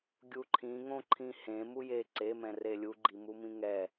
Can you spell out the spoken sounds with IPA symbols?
ɡʲ u ǃʰ ĩ ŋ õ ǃʰ ĩ h ẽ m u j e ǀ e m ɛ̃ r e lʲ u ɡ͡ǃ i m u m ĩ ŋ ɛ

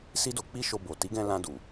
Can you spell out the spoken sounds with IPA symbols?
s i˦ d o˧ k͡p i˦ ʃ o˧ b o˨ t i˨˦ ɡ ɛ̃˧ l ã˧ d u˨

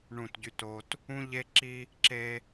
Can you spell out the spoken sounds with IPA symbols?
ɳ ũ˦˨ t ɟ y˦ t o˦ t | ũ˦ ʎ e˦ ǁ i˦ | ǁ e˦

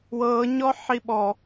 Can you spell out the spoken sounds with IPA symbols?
w ɤː ɲ ɔ ħ i ɓ ɔ

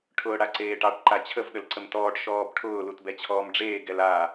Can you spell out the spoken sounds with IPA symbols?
ʈʰ ʊː ɽ a ǀ eː ʈ ɑ ʈ ǃ a t͡ɕʰ ə v ɗ ə l ǀ ə m t ɔː ʈ ʃ ɔː b ʈʰ ʊː l u t b ɛ t͡ɕʰ ɔː m ɖ͡ʐ eː ɡ ɛ l a

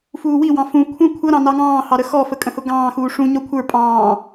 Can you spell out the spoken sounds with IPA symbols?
f uː w i w ɑ̃ f ũ kʷʰ ə̃ kʷʰ ʌ ɾ ɑ̃ n ɑ ŋ ɑ̃ː h ɑ ɾ ə x ɔ f ə kʼ ə̃ h ʊ ɡ ɑ̃ː x uː ʂ ũ ɲ ɔ kʷʰ ə˞ pʼ ɑ̃ː

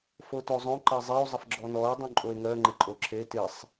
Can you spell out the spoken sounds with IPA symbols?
f o t o zˤ õ ǃ ɜ zˤ e o̯ zˤ ə f ɡ͡ǁ ɔ n ɔ e̯ dˤ ũ ǃʼ o e̯ ŋ ɜ ŋ͡ǃ ɪ ǃʼ o ǁʰ e t ɪ sˤ

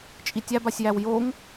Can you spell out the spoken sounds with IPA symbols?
t͡ʃʼ i tʲ æ b a sʲ j æ w j o ŋ

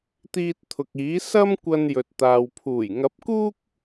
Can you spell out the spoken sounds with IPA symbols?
t̪ iː˧ t̚ t̪ʰ ʊ˨ k̚ iː˨˥ s ɐ˥ m kʷ ɐ˧ n j ɵ˨ t̚ t̪ aː˨ w pʰ uː˨˩ j ŋ ɐ˨˥ p̚ k uː˥ k̚

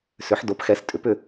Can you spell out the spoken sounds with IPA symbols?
s ʏ˩˥ ħ d o˩˥ p x ɛ˩˧ s tʼ ʏ˩˥ p ʏ˦˨

